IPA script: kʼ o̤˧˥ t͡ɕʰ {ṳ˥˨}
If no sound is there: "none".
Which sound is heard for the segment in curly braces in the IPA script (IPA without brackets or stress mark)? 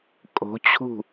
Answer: ṳ˥˨